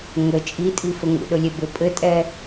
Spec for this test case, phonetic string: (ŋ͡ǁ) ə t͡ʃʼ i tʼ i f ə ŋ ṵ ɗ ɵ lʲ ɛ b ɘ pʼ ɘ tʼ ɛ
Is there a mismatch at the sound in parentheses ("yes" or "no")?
yes